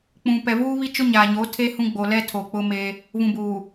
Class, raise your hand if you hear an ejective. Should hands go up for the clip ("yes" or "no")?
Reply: no